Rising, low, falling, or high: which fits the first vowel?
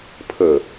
low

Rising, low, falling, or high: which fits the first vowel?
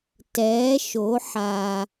rising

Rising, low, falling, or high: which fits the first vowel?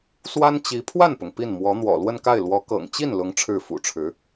high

